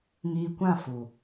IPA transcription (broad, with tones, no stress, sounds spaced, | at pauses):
ŋ iː˧ kʷ ã˦˨ f u˨